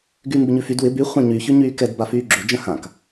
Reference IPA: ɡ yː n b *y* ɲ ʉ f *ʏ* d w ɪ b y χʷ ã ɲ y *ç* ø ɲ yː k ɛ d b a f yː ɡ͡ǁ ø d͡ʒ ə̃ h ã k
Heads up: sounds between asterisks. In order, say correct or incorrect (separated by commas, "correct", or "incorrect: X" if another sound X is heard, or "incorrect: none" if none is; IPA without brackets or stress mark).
incorrect: ɪ, incorrect: y, correct